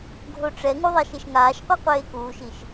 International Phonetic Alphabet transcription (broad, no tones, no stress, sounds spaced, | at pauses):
ɡʱ o ʈ͡ʂ ɛ ŋ u ðˤ ɛ ʃ e ʃ ŋ aː ʃ qʷ i qʷ eː k uː ʃ i ʃ